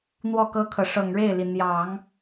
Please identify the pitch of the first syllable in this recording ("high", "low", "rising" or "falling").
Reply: falling